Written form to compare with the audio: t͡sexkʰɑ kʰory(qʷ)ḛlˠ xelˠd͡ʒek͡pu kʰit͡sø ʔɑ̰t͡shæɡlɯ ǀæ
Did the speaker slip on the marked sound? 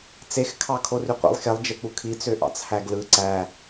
no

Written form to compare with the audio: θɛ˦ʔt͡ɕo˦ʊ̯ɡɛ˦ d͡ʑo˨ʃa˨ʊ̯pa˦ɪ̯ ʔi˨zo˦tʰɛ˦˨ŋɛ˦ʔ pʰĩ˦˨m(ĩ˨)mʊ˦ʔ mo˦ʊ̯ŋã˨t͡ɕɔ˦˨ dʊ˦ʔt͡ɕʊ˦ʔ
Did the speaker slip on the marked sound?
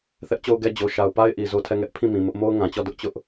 no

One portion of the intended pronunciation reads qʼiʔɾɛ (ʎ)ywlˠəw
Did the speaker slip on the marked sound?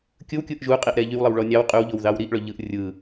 no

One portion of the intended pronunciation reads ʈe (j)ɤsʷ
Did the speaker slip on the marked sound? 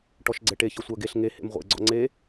yes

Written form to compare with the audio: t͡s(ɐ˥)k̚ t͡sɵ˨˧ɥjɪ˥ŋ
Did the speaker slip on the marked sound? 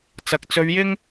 yes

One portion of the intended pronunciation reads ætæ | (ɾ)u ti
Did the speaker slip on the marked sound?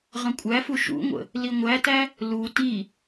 yes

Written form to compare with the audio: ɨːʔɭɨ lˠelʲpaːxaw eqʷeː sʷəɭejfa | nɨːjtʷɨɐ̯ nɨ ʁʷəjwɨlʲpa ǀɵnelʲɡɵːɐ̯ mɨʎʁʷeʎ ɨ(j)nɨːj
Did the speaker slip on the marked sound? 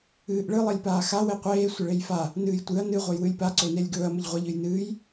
no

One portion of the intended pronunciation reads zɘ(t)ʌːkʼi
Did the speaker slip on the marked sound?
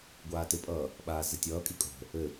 yes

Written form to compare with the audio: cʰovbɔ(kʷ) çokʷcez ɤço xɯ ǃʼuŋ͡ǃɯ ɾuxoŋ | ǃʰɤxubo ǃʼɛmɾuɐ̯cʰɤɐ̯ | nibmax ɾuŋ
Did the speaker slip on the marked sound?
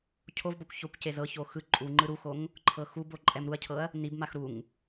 no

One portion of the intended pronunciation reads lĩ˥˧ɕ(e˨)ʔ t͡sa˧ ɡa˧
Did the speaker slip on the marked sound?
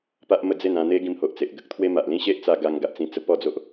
yes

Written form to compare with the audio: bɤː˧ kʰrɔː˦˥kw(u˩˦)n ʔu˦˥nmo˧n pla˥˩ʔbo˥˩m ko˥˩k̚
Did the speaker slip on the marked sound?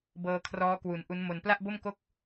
no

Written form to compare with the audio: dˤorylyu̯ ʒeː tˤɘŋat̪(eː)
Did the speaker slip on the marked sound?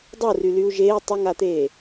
no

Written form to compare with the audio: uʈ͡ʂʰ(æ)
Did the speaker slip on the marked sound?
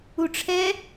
yes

